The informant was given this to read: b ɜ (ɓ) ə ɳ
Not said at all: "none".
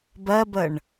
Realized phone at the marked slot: b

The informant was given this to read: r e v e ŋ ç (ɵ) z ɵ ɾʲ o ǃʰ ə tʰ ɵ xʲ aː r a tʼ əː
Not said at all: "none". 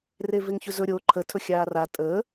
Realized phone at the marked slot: ɵ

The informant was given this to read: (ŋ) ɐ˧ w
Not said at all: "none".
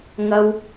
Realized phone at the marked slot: ŋ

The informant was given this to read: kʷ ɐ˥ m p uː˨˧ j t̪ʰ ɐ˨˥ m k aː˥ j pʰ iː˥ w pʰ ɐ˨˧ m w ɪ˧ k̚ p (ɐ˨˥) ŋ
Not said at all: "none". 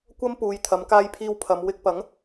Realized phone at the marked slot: ɐ˨˥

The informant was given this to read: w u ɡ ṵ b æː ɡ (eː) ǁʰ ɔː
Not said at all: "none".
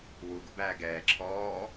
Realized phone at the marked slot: ɛː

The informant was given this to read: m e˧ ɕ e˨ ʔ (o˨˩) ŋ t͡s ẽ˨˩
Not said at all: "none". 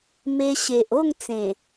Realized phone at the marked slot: o˥˧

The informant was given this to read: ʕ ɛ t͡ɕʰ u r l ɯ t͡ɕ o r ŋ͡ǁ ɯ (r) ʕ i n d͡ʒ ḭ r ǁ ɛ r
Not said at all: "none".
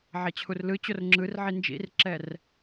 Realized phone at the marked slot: r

